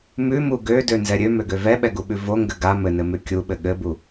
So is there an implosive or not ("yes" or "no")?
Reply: yes